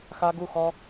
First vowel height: low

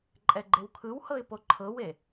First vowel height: mid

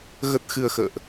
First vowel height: mid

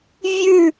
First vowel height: high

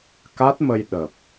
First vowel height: low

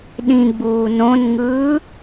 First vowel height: high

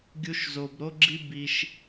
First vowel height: high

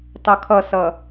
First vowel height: mid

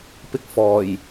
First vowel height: high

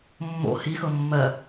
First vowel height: mid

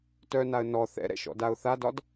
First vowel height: mid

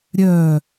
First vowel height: mid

